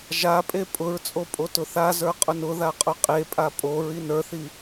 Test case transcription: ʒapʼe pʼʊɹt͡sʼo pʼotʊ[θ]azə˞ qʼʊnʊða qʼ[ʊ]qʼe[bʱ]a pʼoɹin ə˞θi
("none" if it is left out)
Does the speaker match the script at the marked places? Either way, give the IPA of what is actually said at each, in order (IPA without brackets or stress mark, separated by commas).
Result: θ, ʊ, pʼ